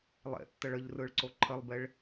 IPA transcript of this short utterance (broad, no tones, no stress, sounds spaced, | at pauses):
lˠ ḛ tː ə ɭ ə ʎ r ɯ ɭ ǀ o ǃʰ ə lˠ b e ɭ